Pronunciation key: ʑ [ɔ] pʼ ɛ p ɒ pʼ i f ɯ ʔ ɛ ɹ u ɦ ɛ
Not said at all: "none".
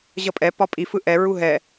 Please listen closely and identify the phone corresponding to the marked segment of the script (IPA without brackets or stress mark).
ʌ